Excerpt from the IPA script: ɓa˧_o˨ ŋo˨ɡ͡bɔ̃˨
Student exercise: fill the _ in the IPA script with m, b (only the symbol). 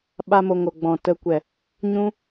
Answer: m